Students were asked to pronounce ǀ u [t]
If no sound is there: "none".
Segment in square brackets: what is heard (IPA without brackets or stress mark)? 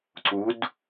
d